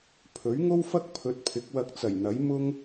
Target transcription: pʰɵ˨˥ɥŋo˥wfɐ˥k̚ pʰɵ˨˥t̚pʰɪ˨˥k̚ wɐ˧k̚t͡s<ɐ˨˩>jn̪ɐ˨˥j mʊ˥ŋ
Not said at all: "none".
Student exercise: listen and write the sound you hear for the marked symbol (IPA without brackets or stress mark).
ɐ˨˩